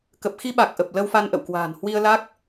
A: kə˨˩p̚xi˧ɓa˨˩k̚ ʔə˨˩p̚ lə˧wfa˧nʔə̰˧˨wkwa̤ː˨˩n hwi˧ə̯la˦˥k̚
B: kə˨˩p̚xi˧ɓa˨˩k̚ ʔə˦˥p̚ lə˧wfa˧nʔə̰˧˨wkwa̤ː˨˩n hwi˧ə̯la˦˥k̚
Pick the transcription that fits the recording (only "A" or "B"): A